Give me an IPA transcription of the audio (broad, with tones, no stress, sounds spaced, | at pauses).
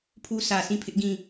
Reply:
pʰ u˦ sʰ ä˨ s ĩ˦˨ pʰ ɪ˦ ʔ ɡ ĩ˦˨